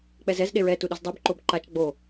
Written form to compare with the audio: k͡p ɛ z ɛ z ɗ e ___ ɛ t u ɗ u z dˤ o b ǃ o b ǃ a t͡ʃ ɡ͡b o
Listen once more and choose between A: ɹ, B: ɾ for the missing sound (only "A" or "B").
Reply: A